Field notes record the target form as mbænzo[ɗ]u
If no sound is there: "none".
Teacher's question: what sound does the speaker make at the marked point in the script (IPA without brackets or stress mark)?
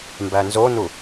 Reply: n